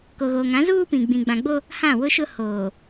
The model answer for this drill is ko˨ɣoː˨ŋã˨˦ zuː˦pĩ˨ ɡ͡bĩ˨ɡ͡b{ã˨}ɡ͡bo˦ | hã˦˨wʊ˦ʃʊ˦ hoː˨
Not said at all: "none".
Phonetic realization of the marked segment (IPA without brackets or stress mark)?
ã˨